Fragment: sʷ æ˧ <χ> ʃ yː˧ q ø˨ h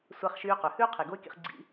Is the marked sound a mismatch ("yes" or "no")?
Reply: no